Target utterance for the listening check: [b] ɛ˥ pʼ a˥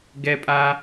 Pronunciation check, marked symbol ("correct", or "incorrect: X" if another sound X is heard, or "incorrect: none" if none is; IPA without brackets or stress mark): incorrect: ɡ